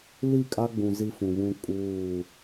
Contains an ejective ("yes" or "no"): yes